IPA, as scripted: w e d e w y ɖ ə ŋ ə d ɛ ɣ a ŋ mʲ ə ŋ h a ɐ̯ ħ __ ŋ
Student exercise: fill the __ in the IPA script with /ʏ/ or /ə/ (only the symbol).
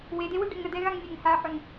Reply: ʏ